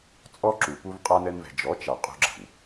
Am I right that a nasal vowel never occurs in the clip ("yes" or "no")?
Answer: yes